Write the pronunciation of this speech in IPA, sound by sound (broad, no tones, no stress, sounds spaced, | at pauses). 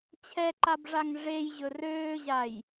t͡ɕʰ ɛ ǃ a b ʐ a ŋ ʐ e j ʑ ɵ r øː ʑ a j